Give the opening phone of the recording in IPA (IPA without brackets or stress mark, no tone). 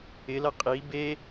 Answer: ɪ